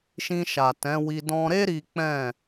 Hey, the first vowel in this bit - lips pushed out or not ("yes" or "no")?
no